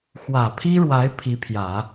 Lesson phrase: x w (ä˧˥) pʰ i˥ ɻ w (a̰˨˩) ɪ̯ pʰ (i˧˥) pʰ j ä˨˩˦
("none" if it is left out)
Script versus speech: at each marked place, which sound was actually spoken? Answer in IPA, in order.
ä˨˩, a˧˥, i˧˥

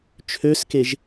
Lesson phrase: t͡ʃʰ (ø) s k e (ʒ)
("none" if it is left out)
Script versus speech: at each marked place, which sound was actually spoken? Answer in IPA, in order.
ø, ʒ

